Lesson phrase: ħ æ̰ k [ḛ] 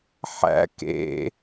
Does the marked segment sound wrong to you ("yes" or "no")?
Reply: no